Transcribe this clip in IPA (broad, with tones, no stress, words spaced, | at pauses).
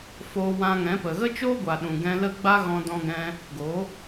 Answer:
foː˧wã˧ŋɛ̃˨˦pə˨ ɣə˦t͡ʃoː˦ɡʷa˨ ɗũ˨ɡɛ̃˧lə˦ ɡ͡ba˦ɣɔ̃˧dɔ̃˧ɡɛ̃˧ | ɡo˨˦